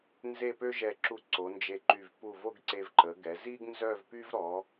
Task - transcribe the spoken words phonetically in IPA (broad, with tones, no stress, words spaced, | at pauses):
nze˥˧pø˥ʒɛ˧˩ǁu˧ ǀo˩˧nd͡ʒe˧˩ǃy˧˩v pu˧˩vo˥˧ɡǀe˧v ǃə˩˧ɡɛ˩˧ zi˥ɡnzœ˥˧vpy˥v ɾɔ˩˧